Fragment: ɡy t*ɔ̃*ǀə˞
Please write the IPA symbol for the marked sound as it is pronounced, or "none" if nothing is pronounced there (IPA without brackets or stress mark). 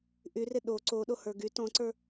ɔ̃